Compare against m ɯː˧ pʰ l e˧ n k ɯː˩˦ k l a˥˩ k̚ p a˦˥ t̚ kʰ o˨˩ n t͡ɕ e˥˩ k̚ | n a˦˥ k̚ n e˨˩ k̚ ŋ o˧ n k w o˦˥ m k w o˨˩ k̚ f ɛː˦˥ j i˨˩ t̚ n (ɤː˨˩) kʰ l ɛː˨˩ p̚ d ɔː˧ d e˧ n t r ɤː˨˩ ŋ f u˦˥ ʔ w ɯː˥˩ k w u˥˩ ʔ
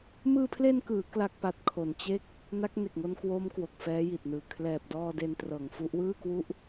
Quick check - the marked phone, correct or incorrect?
incorrect